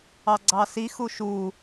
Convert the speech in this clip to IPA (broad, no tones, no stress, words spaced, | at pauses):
ɑɡ͡ǀɑsi xuʃu